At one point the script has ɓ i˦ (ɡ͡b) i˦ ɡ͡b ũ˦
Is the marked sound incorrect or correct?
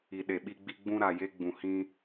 correct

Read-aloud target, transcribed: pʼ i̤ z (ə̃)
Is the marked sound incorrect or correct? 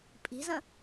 correct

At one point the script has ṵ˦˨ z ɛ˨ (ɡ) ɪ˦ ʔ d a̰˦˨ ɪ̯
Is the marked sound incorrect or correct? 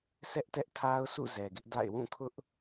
correct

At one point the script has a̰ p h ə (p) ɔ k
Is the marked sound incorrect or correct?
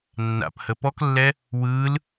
correct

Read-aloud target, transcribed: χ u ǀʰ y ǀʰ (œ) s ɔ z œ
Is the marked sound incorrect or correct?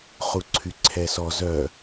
incorrect: ɛ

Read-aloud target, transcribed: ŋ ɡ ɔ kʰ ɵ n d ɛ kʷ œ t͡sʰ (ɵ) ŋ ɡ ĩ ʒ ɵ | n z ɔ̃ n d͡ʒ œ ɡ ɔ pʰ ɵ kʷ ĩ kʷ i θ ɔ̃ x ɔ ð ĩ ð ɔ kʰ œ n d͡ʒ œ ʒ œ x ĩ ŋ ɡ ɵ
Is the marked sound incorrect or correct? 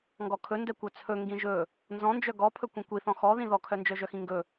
correct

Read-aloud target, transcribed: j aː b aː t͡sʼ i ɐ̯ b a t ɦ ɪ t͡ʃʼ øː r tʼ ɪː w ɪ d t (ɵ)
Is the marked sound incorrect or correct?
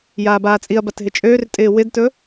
correct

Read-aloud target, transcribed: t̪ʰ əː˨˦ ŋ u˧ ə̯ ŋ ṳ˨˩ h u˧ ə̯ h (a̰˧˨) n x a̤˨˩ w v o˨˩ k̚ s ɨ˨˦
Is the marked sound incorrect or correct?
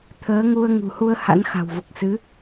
incorrect: a̰˧˥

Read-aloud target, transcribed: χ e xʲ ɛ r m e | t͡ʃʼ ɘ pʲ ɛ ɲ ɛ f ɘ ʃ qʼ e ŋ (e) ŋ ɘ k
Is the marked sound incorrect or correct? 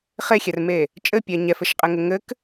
incorrect: ɘ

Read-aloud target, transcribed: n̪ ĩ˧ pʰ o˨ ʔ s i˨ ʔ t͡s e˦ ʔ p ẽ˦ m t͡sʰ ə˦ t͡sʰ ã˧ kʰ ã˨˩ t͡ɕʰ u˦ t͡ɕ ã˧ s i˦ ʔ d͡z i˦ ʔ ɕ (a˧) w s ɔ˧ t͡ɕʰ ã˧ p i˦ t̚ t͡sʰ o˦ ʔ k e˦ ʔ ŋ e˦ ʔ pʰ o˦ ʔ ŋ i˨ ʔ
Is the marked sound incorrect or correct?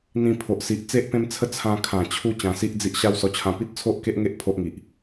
incorrect: a˦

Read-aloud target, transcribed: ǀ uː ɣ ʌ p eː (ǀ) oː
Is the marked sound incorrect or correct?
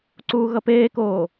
incorrect: k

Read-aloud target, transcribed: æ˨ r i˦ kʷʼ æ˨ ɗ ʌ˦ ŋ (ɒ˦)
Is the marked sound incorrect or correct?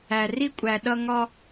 correct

